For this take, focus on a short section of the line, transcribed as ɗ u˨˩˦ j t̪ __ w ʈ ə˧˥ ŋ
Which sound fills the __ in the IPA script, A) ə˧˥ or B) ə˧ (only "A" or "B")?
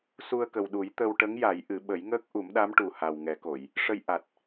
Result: B